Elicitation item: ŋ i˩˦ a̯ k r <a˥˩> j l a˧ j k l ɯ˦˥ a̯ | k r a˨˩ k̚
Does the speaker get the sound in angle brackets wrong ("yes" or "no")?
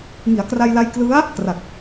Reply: yes